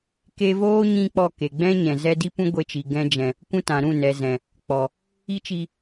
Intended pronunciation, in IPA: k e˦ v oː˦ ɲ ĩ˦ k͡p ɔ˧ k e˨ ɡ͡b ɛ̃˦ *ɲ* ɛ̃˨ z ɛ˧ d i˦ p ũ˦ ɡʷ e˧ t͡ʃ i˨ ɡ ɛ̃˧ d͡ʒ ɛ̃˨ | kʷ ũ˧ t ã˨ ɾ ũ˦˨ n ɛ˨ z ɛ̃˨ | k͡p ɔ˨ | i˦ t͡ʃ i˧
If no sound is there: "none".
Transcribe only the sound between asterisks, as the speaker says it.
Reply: ɲ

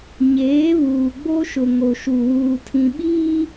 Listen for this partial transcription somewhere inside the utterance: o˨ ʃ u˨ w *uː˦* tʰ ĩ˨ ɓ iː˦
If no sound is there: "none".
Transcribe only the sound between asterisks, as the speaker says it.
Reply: uː˨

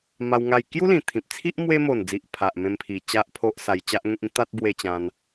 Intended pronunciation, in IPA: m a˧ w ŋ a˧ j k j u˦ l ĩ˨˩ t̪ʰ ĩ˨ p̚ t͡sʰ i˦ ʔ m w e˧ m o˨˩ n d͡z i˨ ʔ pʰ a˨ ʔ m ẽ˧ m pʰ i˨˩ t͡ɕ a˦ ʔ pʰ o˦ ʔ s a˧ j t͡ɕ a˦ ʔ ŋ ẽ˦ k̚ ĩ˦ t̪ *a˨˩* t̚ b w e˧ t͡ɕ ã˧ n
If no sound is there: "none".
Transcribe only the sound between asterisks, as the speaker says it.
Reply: a˦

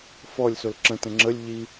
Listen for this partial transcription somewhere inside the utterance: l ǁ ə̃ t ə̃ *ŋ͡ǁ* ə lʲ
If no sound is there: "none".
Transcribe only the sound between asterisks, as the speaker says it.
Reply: ŋ͡ǁ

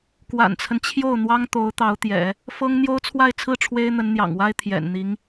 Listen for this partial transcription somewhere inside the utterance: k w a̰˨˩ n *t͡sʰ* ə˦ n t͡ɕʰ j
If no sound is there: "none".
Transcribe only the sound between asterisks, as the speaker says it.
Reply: t͡sʰ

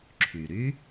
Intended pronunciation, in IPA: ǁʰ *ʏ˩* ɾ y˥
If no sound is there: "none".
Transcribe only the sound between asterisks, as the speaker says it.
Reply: y˩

